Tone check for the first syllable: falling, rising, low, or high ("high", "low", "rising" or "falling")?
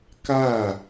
falling